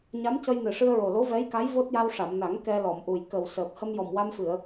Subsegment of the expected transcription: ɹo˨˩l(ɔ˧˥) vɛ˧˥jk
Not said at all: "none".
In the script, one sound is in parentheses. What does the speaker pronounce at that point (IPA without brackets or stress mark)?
o˧˥